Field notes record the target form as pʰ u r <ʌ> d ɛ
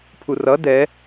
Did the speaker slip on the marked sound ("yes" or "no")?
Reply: no